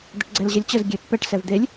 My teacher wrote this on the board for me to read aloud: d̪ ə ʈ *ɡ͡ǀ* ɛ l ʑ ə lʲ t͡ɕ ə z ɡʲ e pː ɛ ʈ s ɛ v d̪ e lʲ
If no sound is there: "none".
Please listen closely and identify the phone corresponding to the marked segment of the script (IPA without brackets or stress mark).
ɡ͡ǀ